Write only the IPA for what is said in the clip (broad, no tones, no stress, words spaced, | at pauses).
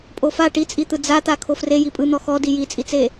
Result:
pʼofa ʈit͡sʼit̪ɯ d͡zat̪a kʰofre jipʼɯn̪ɔ xɔdi jit͡sʼit͡se